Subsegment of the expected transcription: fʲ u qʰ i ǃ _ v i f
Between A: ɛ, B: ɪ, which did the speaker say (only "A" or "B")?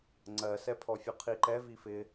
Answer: A